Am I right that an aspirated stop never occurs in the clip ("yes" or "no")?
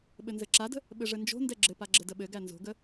yes